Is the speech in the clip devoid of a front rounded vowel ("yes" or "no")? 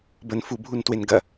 yes